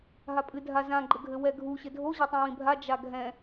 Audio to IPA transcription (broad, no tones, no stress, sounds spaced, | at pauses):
ɦ a pʼ ɨ dʱ a z ã ɡ͡ǃ ɘ ɡʱ ɘ w ɛ ɡʱ u ɕ ɘ dʱ o ʑ e tˤ ĩ w ĩ bʱ a d͡ʒ a ɡʱ ɛ̃